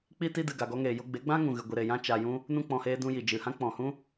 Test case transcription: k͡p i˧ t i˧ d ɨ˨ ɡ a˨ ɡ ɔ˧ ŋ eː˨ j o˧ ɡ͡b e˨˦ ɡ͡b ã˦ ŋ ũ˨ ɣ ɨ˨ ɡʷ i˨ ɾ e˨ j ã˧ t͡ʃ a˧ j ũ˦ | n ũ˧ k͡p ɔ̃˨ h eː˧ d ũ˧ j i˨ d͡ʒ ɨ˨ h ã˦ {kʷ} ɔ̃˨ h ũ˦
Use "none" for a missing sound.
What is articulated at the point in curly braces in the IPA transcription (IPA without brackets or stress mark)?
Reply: k͡p